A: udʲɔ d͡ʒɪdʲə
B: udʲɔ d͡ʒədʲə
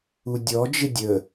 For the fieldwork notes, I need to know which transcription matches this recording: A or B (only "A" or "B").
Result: A